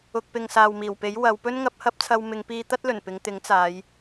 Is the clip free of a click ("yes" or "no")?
yes